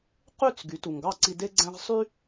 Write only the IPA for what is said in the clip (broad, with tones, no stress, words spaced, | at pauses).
qy˥˩t͡s ɡy˩˥tu˩ŋɡɑ˥˩ǀi˧ de˥ɡ͡ǀæ̃˥ʁ sˤy˥